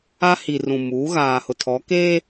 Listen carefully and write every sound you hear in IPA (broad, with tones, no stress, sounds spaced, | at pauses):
a˦ h i˨ r ũ˨ m uː˨˦ ɣ aː˨ h ʊ˨ tʰ ɔ˨˦ k eː˦